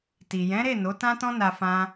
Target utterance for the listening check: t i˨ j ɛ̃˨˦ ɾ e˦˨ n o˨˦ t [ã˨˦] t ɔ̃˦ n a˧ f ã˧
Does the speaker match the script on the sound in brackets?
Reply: no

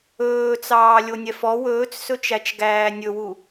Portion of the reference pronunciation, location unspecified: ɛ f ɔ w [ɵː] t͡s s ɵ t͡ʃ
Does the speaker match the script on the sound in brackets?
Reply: yes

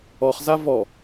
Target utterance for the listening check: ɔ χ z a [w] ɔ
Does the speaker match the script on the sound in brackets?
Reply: no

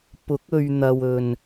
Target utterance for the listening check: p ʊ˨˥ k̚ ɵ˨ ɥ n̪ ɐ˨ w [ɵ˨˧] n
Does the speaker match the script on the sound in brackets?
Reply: no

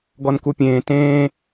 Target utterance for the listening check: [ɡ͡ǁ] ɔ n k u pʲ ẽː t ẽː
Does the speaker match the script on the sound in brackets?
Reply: no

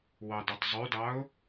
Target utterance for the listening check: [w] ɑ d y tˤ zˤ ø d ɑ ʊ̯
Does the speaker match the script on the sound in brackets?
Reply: yes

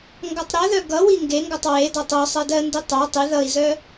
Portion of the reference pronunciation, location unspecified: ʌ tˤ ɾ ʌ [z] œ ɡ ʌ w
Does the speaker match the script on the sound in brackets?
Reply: no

